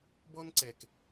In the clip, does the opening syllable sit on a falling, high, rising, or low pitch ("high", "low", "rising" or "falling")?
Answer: high